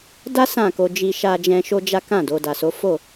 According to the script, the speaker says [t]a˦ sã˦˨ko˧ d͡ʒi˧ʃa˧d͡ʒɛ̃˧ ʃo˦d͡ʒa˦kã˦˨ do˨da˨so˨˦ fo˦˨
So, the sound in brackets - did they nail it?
no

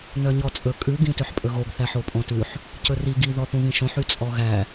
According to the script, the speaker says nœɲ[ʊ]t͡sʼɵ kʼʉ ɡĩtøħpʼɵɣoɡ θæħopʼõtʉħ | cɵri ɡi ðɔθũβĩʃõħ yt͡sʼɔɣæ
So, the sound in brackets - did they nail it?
no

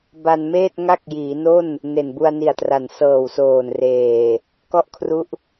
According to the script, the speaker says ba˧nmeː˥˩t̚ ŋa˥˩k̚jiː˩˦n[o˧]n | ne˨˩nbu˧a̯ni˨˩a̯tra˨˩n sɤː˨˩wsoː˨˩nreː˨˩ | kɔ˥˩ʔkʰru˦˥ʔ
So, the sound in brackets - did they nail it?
no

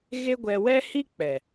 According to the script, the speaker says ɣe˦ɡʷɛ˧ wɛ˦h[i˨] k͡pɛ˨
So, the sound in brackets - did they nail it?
no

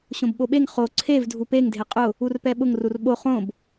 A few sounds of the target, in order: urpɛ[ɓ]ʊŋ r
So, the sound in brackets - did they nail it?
yes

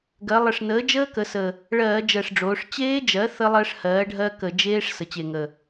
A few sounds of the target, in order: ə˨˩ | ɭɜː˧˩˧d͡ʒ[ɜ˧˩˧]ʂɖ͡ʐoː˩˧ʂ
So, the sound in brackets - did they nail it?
no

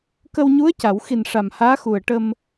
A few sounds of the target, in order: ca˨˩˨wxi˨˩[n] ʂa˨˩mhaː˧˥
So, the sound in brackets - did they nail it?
yes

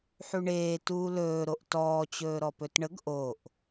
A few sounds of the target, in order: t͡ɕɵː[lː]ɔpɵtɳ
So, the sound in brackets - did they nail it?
no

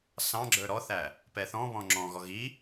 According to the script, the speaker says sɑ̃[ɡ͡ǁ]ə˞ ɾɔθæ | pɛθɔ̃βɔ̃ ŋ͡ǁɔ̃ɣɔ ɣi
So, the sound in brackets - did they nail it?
yes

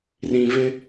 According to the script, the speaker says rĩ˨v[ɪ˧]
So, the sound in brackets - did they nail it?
yes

